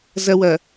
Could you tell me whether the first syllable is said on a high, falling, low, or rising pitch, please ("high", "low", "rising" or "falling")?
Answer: high